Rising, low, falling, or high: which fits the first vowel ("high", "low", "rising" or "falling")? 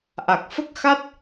low